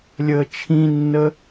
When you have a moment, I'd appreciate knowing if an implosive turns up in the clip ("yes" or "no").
no